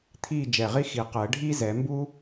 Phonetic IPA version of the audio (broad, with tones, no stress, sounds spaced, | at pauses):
t̪ʰ iː˥˨ d͡ʒ ɛ˧˩ ʁ i˥ x i˨˩˦ q əː˨˩˦ ɖʱ iː˥ z ɛ˨˩˦ m b u˥